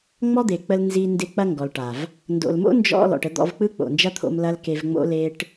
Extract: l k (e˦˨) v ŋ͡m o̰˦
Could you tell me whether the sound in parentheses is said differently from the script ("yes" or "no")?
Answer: yes